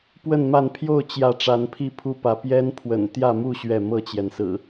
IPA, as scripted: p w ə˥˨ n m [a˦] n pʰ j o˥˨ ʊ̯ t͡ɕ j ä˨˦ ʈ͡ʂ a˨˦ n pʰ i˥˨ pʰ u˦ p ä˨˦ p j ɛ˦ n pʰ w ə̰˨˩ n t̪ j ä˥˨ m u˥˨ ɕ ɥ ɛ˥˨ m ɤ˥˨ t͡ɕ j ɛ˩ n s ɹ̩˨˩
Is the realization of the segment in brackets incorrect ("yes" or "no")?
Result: yes